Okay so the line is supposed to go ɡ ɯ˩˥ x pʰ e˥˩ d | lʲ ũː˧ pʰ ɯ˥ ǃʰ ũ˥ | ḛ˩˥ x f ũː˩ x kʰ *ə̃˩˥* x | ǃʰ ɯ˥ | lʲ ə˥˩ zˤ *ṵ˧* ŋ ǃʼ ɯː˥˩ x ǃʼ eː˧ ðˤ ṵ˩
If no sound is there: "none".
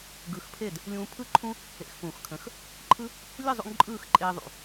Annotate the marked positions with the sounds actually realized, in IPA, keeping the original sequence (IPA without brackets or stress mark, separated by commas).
ə̃˩˥, ṵ˧